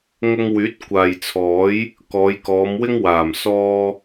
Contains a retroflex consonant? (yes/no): no